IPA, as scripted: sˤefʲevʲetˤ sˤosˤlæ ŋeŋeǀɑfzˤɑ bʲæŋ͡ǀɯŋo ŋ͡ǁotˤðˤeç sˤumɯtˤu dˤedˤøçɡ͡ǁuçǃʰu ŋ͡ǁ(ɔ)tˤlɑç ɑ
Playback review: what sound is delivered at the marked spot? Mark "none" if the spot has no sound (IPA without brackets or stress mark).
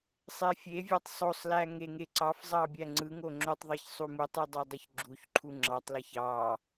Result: ɑ